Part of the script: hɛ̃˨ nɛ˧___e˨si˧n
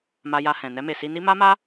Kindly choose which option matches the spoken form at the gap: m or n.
m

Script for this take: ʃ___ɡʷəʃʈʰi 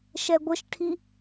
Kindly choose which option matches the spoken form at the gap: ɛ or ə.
ɛ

